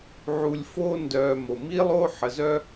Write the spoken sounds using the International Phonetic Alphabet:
ʕ u˨ lʲ f oː˦ n d œː˨ m o˩ m i˦ lˠ oː˦ ħ ə˨ z œ˦

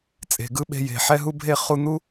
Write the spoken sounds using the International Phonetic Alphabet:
t͡sʼ e̤˩ ɡ ɯ˥ ɓ e̤˧ j e̤˩ ħ ɛ˥ ɦ u˥ bʱ e˥ χ u˧ n̪ u˥

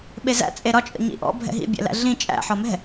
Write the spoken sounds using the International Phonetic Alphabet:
ɓ e z æ̰ t͡sʼ e ɾ ɒ t͡ʃʼ ə̰ ɲ ḭ ʔ ɔ̰ bʱ ɛ̰ ɦ ḭ bʲ æ̰ l æ̰ ɮ ĩ t͡ʃʼ æ̰ ħ ɒ m ɛ̤

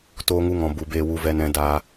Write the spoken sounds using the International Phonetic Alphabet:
t oː˦ ŋ u˦ ŋ ɔ̃˧ b u˧ b eː˧ w u˧ v ɛ˦ n ɛ̃˦ d aː˦

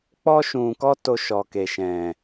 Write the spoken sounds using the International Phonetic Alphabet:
k͡p ɔ˧ ʃ ũ˨ k ɔ˧ t o˧ ʃ ɔ˨ k e˨ ʃ ɛ̃˨

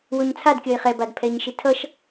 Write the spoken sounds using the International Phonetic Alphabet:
w o ɲ t͡sʰ a d kʲ ʌ ɪ̯ χ ɛ b a d pʰ ɛ ɲ ʃ i tʰ ʌ ʃ

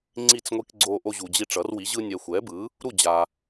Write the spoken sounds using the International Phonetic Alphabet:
ŋ͡ǀ i˥˨ t͡s ŋʷ i˦ k ɡ͡ǀ o˦ ʔ o˦ ʑ u˨ d͡ʑ i˦ ʈ͡ʂ ʌ˩˥ r w i˩˥ ʑ ɯ˦ nʲ ɛ˨ xʷ ɛ˩˥ b ɯ˩˥ | ɾ u˥˨ d͡ʑ a˨

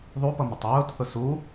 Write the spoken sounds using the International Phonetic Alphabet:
ðˤ u p ʌ m ʊ tˤ ʊː t θ ʊ s u

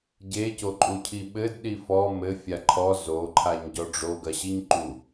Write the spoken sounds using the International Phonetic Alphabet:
ɟ e c o ǃʼ u cʰ i ɓ ɘ d ɗ i f ɔ m ɘ fʲ a ǃʰ ɔ z o ǃʰ a ɲ ɟ ɔ ɖ͡ʐ o ɡ ɐ ɕ i ɲ ǃ u

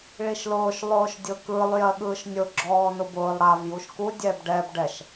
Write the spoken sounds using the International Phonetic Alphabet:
ɭ i ʃ l ʊː ʃ lˠ ʊː ʃ dʲ ʊ k ɯ lˠ j ɜ ɠ ɯː ʃ nʲ ʊ ɡ͡ǁ ɔː n ʊ b ʊː lˠ ɽ a v j u ʃ k u dʲ ɛ b ɖ ɛ b ɖ ɛ ʃ

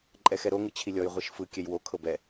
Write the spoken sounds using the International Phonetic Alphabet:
ǃʼ ɛ x ɛ ɾ o ŋ ɯ t͡ɕʰ i lʲ ɔ j ʁʷ i ʃ f ɯ kʲ ɛ j w o kʰ ɤ b ɛ

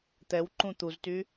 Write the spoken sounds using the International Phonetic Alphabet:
t̪ ɛ w ǃ ũ t̪ u z t y

